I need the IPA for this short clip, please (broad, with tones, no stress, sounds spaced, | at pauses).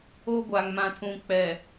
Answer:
o˦ ɡʷ a˨ ŋ m ã˨ tʰ ũ˨ k͡p ɛ˨